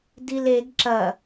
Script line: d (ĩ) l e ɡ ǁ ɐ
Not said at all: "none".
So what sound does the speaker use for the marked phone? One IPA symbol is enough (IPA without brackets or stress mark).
i